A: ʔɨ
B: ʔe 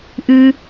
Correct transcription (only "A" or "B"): A